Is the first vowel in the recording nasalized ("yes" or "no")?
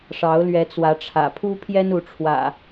no